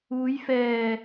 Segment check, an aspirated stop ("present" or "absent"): absent